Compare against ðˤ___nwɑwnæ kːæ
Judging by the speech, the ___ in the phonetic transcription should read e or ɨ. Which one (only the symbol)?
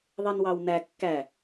e